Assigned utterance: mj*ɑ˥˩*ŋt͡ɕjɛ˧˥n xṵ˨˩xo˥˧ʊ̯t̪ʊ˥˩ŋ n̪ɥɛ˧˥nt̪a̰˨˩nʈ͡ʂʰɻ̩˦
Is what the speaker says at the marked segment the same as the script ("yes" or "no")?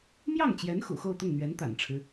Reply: yes